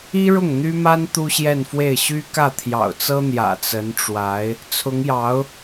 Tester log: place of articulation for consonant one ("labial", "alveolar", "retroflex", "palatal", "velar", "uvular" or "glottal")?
retroflex